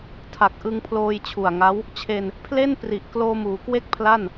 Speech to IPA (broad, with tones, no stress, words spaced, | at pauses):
tʰa˨˩k̚ʔɯ˧ŋpʰloː˧j t͡ɕʰu˨˩a̯ŋa˦˥w | t͡ɕʰe˧n | pʰle˥˩npri˨˩ʔ kloː˧muː˩˦kwe˥˩k̚pʰla˥˩n